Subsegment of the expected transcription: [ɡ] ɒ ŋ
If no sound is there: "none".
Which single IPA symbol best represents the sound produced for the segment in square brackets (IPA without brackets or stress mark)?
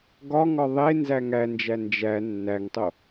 ɡ